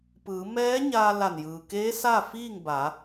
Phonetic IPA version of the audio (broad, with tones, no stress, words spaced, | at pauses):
pɯː˩˧mɛː˧˥ ɲaː˧la˧˩njɯː˩keː˧˥ sa˥˨ fiː˥˨ŋ ba˩˧